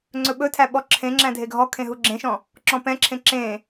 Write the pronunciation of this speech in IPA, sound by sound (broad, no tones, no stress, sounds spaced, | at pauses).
ŋ͡ǀ ɵ ɓ ɵ tʰ æ ɓ ɔ ǁʰ ẽ ŋ͡ǁ æ̃ dʱ e ɡʱ ɔ kʰ ẽ ɦ u ɡ͡ǁ ẽ ʃ ɔ̃ | ǁ ɔ̃ p ɛ̃ ǁʰ ẽ ǁ ẽ